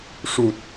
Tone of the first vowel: low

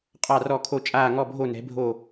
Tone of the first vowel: falling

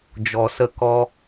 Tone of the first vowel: low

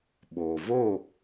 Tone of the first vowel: low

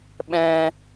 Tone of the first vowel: high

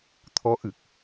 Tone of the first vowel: rising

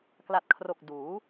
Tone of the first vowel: low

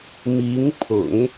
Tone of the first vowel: rising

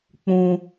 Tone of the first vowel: high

